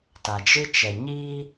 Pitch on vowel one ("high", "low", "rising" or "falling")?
low